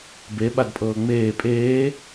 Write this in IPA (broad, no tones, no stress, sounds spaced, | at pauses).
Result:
b e ɓ a d pʼ ɤː ŋ͡m eː pʼ eː